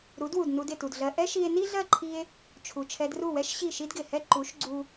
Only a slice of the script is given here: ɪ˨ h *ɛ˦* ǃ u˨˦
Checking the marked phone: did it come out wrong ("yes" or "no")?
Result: no